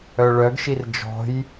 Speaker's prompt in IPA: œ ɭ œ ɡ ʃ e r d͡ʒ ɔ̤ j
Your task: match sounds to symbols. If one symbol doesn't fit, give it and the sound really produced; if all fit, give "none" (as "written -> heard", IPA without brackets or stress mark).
e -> i